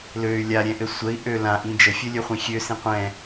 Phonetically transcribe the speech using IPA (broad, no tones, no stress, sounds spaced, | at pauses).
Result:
l ø y̯ lʲ a ɾʲ ɛ̃ ʔ ɘ sʷ ə i̯ ʔ ø l ã ʔ ĩ d͡ʒ ə fʲ ɵ lʲ ø χʷ ĩ xʲ ø s ĩ qʷ ɛ̃